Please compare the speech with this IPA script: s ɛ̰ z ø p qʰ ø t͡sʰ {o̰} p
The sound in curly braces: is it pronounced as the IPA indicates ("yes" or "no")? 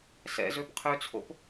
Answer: yes